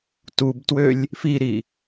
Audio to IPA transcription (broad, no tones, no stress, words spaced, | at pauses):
tubtwølʲ | fiɾi